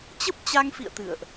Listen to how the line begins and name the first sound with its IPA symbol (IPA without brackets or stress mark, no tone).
t͡ɕ